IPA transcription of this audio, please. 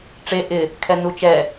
ʈ͡ʂ e ʔ ɪ | kʰ ɛ n u t͡ʃ ɛ

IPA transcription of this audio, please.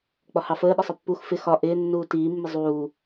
k͡p ɒ h ɑ f əː ɗ ʌ sˤ ə pː u x f ɪ x ɒ ʔ ɪː nː uː t iː mː ɪ zˤ uː

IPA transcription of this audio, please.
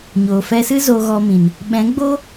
ɲ oː˨ f ɛ˧ s ɨ˦ z o˧ ɣ ɔ˧ m ĩ˨ n | ɓ ɛ̃˨˦ ɡ͡b o˦

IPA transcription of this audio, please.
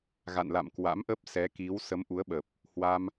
ɣ a̰˧˨ n l a̰˧˨ m k w a̰˧˥ m ʔ ə˦˥ p̚ s ɛ˨˦ k i˨˦ w s ə˨˦ m ʔ u˨˦ ə̯ ɓ ə˨˩ p̚ | h w a˧ m

